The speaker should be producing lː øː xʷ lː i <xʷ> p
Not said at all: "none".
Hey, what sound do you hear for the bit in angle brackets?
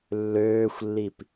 none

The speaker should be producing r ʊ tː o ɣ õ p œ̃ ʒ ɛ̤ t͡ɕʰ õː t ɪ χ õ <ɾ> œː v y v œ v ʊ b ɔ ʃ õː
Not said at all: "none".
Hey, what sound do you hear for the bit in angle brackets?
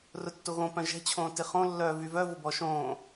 lː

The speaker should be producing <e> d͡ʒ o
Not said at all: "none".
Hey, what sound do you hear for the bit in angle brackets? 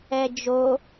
ɛ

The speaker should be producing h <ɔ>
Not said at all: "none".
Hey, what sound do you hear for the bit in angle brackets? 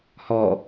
ɔ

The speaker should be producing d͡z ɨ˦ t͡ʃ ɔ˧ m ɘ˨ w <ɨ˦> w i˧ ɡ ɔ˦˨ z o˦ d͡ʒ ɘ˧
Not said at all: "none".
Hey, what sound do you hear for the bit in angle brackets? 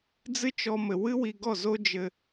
ɨ˦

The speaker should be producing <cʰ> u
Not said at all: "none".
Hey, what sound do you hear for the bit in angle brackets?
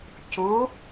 c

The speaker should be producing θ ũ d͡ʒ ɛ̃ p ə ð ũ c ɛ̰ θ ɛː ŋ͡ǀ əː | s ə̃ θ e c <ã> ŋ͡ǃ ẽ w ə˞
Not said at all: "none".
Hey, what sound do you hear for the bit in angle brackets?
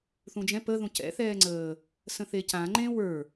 ã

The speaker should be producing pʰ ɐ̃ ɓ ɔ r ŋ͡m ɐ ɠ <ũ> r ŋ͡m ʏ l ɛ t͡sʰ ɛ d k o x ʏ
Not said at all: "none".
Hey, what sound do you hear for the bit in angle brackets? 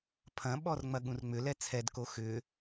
ũ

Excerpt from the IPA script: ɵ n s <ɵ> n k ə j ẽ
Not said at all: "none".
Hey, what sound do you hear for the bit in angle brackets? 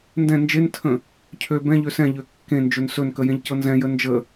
ɵ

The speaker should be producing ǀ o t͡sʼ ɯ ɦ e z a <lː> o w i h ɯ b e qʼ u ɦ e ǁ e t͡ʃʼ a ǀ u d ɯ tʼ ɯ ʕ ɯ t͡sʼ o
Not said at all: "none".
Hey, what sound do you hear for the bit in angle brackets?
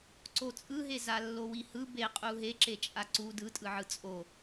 lː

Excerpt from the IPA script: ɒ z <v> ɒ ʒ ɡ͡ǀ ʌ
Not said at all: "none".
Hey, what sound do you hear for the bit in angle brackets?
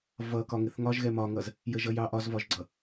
v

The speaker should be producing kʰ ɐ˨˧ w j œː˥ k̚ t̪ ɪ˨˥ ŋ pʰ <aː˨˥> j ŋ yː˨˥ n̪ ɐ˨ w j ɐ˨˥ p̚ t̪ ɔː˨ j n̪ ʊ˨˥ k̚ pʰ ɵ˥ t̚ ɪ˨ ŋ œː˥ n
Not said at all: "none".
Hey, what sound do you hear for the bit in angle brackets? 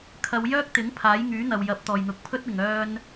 aː˨˥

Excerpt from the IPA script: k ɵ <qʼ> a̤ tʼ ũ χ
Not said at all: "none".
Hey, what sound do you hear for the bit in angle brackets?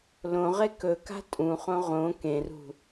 k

